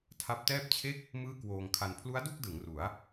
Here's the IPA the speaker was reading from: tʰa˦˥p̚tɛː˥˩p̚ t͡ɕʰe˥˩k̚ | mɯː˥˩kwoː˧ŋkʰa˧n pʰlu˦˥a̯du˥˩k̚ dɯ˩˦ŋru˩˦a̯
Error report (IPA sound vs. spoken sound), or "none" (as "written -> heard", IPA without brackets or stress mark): none